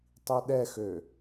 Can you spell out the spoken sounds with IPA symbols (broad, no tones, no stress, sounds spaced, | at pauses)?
tˤ i ɗ ɛ x ø